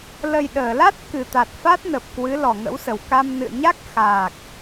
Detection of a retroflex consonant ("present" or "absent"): absent